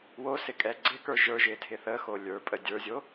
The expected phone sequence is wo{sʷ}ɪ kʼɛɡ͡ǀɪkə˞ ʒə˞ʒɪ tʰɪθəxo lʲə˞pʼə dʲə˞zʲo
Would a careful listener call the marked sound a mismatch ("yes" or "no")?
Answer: yes